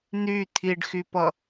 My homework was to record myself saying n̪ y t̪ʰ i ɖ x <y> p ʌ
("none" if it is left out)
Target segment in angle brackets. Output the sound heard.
y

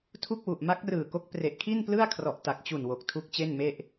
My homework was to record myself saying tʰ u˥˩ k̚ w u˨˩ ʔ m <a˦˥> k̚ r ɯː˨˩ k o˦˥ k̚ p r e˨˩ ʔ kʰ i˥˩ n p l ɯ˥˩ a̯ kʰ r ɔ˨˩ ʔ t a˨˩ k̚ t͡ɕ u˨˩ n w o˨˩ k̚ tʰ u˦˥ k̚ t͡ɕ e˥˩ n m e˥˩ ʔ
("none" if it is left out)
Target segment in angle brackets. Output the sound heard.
a˦˥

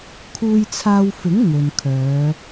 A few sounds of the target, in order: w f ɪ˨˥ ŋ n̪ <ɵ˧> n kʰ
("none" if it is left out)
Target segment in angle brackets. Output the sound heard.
ɵ˨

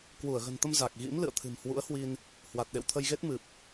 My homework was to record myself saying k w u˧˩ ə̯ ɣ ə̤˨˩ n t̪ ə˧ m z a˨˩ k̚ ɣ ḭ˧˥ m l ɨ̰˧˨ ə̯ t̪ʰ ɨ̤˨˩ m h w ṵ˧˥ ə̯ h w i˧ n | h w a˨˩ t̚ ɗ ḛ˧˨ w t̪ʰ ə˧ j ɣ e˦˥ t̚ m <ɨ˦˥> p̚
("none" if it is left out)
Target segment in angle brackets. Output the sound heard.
ɨ˨˩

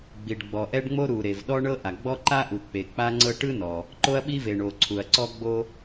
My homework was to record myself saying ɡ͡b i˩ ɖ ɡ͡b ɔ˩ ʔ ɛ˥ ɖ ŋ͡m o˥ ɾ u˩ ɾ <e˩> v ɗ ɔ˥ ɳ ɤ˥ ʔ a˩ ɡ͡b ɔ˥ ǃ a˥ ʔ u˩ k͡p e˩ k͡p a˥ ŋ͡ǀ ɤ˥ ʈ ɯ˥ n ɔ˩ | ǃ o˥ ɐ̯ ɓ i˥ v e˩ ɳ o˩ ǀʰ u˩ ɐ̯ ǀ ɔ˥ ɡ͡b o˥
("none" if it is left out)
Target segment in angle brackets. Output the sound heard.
e˩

